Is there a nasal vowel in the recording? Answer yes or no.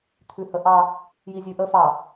no